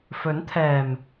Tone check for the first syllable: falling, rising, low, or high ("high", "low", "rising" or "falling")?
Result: rising